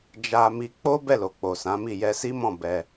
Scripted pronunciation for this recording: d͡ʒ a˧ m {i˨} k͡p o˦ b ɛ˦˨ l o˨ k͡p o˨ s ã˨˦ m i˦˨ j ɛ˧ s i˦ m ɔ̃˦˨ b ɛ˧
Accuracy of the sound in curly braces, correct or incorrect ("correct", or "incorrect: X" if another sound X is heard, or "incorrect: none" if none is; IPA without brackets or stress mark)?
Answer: incorrect: i˧